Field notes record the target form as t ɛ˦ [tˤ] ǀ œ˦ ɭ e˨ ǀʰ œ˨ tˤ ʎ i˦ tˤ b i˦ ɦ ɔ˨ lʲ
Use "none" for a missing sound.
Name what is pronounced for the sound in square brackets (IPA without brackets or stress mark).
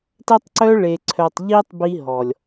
tˤ